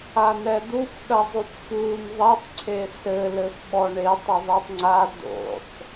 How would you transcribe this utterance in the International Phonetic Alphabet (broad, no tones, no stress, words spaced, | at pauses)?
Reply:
anɛd̪uf ɗɐzˤupfun ðˤɛtˤ ǀʰesɘ lɘfɓɔɳetˤ ɘðˤitˤŋ͡ǀa d̪o̰sˤ